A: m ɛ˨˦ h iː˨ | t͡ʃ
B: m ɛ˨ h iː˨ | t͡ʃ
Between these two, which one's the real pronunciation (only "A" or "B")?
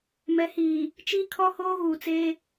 A